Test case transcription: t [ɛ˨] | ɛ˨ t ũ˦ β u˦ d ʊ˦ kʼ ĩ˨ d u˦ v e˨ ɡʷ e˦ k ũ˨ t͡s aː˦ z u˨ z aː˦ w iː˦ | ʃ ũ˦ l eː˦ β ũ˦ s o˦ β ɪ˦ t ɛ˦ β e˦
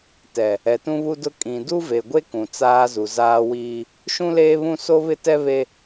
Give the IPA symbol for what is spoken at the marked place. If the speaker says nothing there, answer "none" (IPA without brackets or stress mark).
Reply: ɛ˨